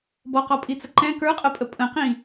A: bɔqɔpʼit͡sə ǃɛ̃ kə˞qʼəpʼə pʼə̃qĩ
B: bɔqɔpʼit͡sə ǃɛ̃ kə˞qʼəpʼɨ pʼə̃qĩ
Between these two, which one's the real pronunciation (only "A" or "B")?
A